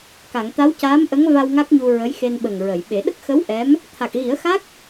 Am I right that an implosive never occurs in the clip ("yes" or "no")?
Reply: no